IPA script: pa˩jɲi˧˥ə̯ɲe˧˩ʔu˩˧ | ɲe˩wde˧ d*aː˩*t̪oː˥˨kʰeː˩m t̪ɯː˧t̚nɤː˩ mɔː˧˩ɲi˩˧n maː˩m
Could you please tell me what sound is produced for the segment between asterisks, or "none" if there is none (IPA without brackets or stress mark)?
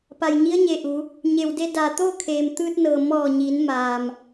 aː˩